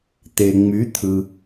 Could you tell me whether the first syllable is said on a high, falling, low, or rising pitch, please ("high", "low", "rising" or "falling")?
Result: low